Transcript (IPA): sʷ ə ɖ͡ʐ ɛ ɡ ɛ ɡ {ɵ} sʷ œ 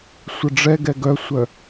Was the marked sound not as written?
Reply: yes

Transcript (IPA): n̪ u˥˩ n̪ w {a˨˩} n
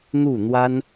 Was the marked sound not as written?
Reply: yes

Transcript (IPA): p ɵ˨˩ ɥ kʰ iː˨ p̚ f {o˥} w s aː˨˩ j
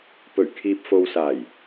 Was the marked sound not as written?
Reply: yes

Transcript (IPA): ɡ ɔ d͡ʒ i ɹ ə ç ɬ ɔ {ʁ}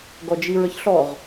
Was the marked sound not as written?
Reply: no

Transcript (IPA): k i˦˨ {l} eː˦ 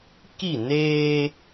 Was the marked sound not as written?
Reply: yes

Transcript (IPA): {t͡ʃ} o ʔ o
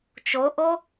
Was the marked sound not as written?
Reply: no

